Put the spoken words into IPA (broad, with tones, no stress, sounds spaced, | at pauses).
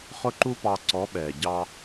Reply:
χ ʊ˦ ǃ u˦ p ɑ˧ ǀ ɔ˨˦ ɓ ɛː˨ ɟ ɑ˧